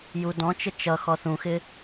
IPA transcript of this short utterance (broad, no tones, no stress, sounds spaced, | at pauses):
j u d ɔ̃ t͡ʃ ə t͡ʃ ʌ x ɔ θ ũ x ɪ